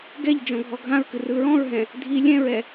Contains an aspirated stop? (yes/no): no